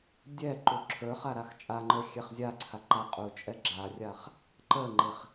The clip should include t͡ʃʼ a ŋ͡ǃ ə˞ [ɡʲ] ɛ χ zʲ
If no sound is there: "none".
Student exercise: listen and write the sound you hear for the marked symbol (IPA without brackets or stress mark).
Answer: xʲ